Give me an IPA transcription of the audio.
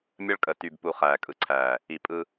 mʲ ə˦ ɭ kʼ ə˨ t y˨ b p u˨ χ æː˨ kʼ ɯ˨ ǀʰ æː˨ | i˨ pʼ ɯ˦

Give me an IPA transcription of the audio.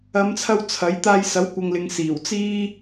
ɐ˨˧ m t͡sʰ ɐ˧ w t͡sʰ ɐ˨˥ j t̪ aː˧ j s ɐ˨˥ w kʷ ɐ˨ ŋ l ɪ˨ ŋ s iː˨˩ w t͡s iː˥

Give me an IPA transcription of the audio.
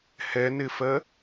h ɛ n ɪ f ɜ

